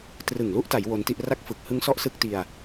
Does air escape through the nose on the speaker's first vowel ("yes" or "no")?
no